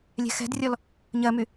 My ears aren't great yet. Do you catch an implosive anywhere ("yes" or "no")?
no